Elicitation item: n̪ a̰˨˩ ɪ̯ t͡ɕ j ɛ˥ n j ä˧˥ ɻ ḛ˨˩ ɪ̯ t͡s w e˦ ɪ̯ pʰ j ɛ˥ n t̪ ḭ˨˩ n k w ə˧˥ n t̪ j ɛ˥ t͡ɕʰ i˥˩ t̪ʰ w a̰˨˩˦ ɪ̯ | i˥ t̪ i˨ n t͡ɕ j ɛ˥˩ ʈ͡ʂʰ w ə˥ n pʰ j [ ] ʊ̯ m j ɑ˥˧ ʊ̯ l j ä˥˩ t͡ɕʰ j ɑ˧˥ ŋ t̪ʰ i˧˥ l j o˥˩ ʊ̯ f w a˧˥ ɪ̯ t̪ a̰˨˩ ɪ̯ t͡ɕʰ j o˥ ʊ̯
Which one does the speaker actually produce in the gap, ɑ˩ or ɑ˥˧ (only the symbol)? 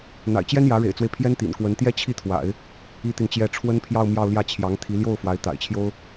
ɑ˥˧